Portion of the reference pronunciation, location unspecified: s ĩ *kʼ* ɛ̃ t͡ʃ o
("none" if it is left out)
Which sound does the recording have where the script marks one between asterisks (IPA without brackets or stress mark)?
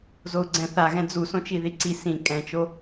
kʼ